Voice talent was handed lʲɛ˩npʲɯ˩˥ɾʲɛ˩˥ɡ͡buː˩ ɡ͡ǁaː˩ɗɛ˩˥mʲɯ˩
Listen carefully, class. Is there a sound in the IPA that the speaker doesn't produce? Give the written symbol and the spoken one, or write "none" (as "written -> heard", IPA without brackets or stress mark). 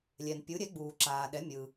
ɡ͡ǁ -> ǁ